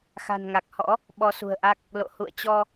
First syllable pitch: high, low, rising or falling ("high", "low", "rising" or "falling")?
low